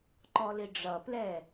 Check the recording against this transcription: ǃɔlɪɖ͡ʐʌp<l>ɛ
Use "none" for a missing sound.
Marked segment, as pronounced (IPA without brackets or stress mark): l